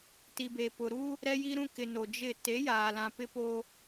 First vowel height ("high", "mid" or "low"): high